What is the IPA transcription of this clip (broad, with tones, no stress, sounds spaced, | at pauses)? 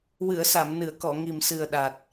w ɨ˨˩˨ ə̯ s a˨˩˨ m n ɨ˨˩˨ ə̯ k ɔ˨˩˨ ŋ i˨˩ m s ɨ˨˩ ə̯ ɗ a˨˩ t̚